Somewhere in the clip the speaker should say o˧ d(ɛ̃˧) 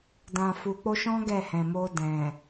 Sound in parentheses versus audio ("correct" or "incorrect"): incorrect